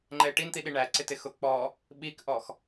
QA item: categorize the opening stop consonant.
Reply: click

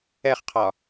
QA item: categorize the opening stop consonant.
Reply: aspirated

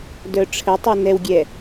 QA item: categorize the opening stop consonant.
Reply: plain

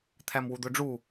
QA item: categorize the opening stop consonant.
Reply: aspirated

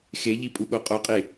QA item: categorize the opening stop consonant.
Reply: ejective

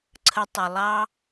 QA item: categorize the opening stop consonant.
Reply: click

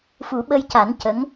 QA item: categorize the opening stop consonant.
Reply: implosive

